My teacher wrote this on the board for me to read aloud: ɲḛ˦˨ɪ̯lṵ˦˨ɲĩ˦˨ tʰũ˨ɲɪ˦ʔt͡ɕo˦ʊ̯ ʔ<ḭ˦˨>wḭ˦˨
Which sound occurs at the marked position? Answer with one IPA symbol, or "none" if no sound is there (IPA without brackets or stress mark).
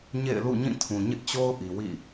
i˨